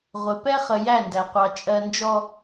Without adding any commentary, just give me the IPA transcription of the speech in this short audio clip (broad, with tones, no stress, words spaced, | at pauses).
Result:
ʁʷɪ˨ pɛ˦χə˨ jæ˦˨ndæ˨qʷɑ˨ t͡ʃʼɜ˨nd͡ʒɔ˨